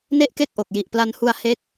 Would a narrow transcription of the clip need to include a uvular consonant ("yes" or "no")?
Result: no